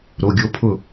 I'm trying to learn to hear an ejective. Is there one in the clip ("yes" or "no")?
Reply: no